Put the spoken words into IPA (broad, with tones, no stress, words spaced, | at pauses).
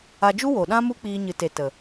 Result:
a˧d͡ʒu˦wo˨ ɗã˦mu˦k͡piː˧ ɲɨ˨te˨ tə˨